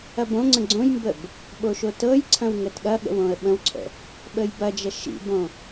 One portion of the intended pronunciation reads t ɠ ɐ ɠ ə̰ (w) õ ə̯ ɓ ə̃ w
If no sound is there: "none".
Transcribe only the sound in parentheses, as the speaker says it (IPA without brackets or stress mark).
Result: w